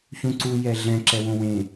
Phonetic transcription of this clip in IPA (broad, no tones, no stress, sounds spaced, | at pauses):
ç ũ ǀ u j ɛ ɮ ɛ̃ ǁ ɛ w õ w ẽ